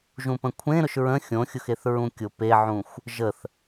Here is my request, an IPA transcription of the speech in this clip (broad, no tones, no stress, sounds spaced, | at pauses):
ʒ ũ p ə̃ kʷʰ ẽ ɾ ʊ ʃ ɹ ə̃ xʲ õ xʲ ʊ x e θ ɹ ũ kʲ ʊ p e ʕ ũ xʷ | ʒ ə θ